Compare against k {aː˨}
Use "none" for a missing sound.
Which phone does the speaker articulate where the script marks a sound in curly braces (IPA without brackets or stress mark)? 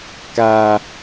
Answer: aː˨